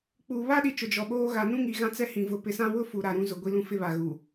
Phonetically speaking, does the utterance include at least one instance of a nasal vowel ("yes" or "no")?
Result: yes